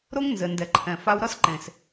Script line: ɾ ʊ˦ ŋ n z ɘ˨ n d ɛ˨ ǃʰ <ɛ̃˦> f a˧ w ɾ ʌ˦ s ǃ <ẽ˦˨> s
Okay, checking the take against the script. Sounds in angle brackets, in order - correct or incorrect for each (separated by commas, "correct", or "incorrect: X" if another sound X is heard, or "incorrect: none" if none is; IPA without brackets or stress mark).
incorrect: ɛ̃˨, incorrect: ẽ˨